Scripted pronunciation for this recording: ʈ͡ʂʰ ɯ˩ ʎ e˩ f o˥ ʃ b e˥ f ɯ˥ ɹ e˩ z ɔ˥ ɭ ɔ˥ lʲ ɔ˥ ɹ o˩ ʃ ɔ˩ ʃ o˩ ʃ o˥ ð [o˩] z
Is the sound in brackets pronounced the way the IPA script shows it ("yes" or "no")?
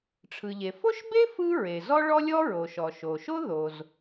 yes